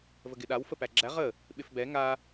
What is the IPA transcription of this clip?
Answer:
v ə ɡ ɪ ɗ a w f ə p æ ɡ͡ǁ æ ʁ ə | ɓ ɪ f b ɛ ŋ a

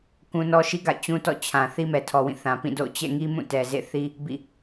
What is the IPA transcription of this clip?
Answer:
k ũ˦ n ɔ˦ ʃ i˦ ɡ a̰˦˨ ɪ̯ t͡ɕ ũ˦ t ɔ̰˦˨ t͡ɕʰ ã˨ θ i˦ m ɛ˨ tʰ ɔ˨ w ĩ˦˨ θ ã˨ p ĩ˦˨ d o̰˦˨ ʊ̯ t͡ɕ ɛ̰˦˨ ŋ i˦ m ũ˦˨ t ɛ˨ z ḛ˦˨ θ i˦ | b ḭ˦˨

